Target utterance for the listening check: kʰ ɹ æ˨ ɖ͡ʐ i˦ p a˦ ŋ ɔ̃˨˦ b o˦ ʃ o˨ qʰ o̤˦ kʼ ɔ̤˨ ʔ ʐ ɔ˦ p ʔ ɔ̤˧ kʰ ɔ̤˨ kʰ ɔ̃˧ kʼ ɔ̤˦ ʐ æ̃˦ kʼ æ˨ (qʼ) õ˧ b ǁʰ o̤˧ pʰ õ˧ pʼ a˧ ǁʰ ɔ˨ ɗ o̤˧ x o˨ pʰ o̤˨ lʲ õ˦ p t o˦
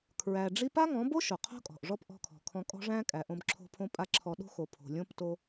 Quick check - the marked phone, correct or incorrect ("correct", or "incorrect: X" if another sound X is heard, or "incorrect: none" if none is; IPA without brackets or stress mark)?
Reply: incorrect: ʔ